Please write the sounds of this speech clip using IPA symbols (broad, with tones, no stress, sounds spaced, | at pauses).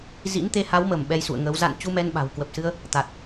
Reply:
z ḭ˧˥ n t̪ e˧ h a˨˦ w m ə˧˩ m ɓ ɛ˧ j s ṵ˧˨ ə̯ ŋ əː˨˦ w z a̰˧˨ n t͡ɕ u˧ m ɛ˧ n ɓ a̤˨˩ w k w ə˨˩ p̚ s ɨ˧ ə̯ | t̪ a˨˩ t̚